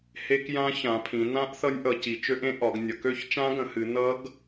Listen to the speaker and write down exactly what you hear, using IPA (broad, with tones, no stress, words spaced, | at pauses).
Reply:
he˦˥k jã˦˥çã˩˧pʰĩ˩˧ nã˦˥ʔ θʌ˦˥nʲʔʌ˩˧ci˩˧ t͡ʃø˦˥ʔẽ˦˥ ʔɒ˩˧ɡ nʲʌ˩˧k ø˦˥çt͡ʃã˦˥ɡə̃˩˧hɨ˩˧ nʌ˦˥ɡ